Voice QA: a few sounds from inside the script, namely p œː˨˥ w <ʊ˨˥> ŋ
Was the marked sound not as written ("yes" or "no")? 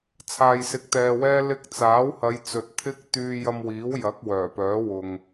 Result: yes